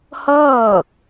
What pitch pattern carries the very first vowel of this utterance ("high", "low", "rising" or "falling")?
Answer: falling